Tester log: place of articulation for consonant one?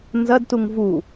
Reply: alveolar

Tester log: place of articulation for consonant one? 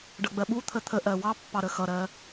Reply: retroflex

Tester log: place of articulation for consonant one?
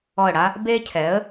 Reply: retroflex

